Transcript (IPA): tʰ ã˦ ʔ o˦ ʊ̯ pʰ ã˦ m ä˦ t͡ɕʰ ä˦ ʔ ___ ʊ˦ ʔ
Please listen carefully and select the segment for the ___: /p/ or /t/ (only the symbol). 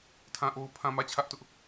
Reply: t